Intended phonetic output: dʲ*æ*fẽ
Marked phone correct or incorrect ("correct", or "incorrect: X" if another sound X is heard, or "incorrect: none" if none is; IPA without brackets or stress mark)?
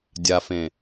incorrect: a